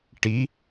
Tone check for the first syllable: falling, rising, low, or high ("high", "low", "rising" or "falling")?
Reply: rising